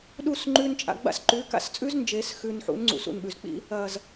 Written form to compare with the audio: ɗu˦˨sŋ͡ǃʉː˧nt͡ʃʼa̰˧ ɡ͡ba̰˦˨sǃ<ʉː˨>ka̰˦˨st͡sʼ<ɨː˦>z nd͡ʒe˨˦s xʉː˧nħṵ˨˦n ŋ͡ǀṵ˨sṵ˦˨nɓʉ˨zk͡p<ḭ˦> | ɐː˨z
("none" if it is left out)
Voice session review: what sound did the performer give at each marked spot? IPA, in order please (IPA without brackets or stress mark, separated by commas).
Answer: ʉː˨˦, ʉː˦, ḭ˦